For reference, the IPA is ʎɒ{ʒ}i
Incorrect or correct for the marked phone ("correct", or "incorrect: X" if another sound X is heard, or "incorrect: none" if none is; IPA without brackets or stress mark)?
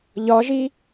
correct